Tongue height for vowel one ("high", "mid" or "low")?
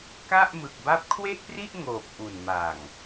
low